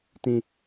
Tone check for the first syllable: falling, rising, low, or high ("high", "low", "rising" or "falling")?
low